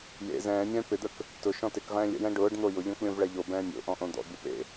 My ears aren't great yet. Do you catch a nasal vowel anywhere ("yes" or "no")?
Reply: yes